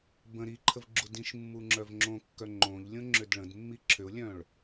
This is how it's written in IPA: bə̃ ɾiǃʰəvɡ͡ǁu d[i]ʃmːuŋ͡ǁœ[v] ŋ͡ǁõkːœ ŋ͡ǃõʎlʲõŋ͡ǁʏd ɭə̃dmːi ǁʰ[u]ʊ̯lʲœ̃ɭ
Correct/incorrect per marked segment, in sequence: incorrect: ĩ, correct, incorrect: ʏ

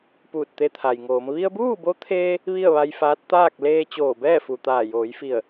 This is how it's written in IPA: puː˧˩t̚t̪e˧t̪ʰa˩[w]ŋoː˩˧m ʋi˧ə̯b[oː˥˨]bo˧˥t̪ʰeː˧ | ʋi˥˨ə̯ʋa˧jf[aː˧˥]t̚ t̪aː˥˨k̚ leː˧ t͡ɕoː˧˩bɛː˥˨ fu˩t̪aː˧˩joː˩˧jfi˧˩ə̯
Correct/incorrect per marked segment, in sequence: incorrect: j, incorrect: uː˥˨, correct

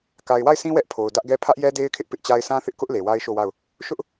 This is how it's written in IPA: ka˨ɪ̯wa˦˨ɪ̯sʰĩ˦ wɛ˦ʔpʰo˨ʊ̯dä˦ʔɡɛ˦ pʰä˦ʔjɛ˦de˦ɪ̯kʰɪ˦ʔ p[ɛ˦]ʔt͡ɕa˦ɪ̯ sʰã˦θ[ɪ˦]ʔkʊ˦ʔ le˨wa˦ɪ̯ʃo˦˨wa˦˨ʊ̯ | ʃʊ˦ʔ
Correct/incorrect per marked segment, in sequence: incorrect: ɪ˦, correct

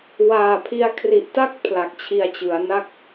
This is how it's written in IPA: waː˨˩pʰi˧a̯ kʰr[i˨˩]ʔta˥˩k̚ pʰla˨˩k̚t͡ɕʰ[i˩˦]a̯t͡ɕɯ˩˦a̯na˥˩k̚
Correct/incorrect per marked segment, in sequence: correct, incorrect: i˧

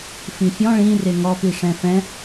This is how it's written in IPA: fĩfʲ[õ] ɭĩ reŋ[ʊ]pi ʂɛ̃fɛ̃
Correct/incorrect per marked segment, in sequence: incorrect: ɔ̃, incorrect: ɔ

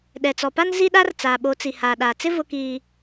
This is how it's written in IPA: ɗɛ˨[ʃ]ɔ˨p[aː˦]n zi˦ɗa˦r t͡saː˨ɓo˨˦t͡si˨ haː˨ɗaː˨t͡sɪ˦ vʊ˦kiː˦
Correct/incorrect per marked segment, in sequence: incorrect: t͡s, incorrect: a˦

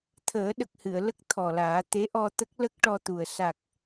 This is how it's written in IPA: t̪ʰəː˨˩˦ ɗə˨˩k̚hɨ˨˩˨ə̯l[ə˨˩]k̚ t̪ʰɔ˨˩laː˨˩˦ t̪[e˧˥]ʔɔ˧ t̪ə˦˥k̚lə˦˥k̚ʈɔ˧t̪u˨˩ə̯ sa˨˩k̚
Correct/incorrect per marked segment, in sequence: incorrect: ə˦˥, correct

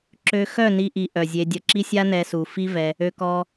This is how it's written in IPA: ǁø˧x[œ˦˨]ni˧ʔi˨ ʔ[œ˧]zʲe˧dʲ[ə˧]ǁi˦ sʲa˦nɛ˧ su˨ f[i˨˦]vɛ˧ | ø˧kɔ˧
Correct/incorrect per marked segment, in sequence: correct, incorrect: œ˨, correct, incorrect: i˦

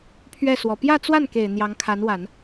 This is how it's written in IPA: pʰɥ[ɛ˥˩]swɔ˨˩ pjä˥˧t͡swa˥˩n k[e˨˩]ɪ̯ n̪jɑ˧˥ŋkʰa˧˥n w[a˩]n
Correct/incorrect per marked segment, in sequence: correct, correct, incorrect: a˨˩˦

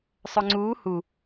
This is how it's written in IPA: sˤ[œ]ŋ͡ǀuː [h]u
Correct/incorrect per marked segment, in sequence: correct, correct

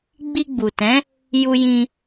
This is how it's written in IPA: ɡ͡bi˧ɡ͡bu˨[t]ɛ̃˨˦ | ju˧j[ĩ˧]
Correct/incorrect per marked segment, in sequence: correct, correct

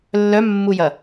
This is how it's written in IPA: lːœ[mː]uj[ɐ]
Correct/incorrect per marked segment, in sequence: correct, correct

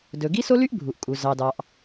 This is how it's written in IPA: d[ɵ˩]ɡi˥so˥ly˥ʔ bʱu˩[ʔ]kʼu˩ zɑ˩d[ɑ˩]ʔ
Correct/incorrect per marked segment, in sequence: correct, correct, correct

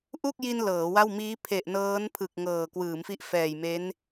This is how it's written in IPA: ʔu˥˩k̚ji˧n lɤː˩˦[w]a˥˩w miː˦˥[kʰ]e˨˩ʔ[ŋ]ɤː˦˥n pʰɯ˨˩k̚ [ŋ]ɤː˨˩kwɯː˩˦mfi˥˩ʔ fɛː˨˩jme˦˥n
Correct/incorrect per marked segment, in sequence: correct, incorrect: pʰ, incorrect: n, correct

